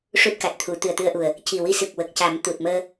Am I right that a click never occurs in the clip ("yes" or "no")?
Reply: yes